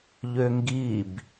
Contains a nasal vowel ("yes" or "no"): no